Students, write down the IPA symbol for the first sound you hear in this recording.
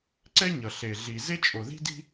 ǀ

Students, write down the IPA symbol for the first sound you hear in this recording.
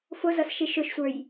f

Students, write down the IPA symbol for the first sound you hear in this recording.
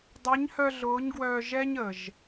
dˤ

